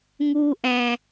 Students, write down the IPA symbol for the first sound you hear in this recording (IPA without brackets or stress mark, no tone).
ŋ